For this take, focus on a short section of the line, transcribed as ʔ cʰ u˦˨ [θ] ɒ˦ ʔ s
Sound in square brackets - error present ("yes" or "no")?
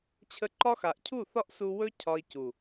no